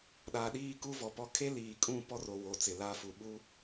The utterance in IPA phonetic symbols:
ɗ aː˨ ɗ iː˦ k u˦ v ɔ˨ p ɔ˦ kʰ e˦ l iː˨ kʼ ũ˦˨ p ɔ˦ r o˨ w o˨ t͡s ɪ˨ l a˦ f u˨ ɓ u˦

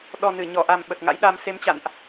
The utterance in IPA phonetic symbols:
ɗ ɔ˨˩ n ɨ˧˩ ɲ ɔ˧˩ ʔ a˨˩ m ɓ ə˨˩ t̚ ŋ a̰˧˥ j ɗ a˧ m s e˨˦ m t͡ɕ a̰˧˨ n ʔ

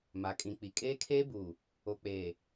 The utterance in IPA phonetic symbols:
m a˨ kʼ ĩ˨ k͡p i˨ kʼ eː˦ kʰ eː˦ b uː˨ | o˨ k͡p eː˨

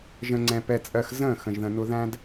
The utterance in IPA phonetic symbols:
ʒ ə̃˨ ŋ͡ǀ ɛ̃˨ p ɛ˨ t͡sʼ ɜ˨ x z ə̃ː˦˨ x ə̃˨ ʒ ð ə̃˨ n ʊ˨ ð æ̃˨ d

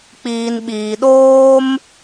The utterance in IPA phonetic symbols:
k͡p iː˨ n ɓ iː˨ ɗ oː˦ m

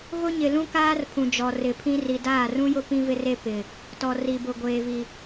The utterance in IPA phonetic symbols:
ɣ ʊ˦ ɲ ɪ˨ l ũ˦ k aː˦ r pʰ ũ˨ d͡ʒ ɔ˨ r ɪ˨ pʰ ĩ˦ r i˨ d aː˦˨ r ũ˦ j ʊ˦ p ĩ˦ v ɪ˦ r e˦ p ɪ˨ | t ɔ˨ r i˨ b ʊ˨ ɡʷ eː˨ v i˨

